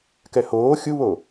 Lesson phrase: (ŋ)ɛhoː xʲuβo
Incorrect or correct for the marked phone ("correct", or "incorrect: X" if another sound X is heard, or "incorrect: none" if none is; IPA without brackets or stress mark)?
incorrect: k